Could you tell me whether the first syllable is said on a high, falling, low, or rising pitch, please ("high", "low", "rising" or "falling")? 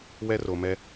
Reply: high